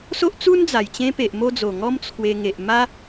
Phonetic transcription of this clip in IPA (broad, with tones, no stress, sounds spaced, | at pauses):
s o˦ ʔ t͡s u˦ n d͡z a˨˩ j t͡ɕ ẽ˧ p e˨ ʔ m o˧ d͡z o˨˩ ŋ ɔ˦ m t͡sʰ w e˧ ŋ e˨ ʔ m a˦